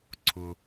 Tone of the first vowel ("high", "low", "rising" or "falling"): high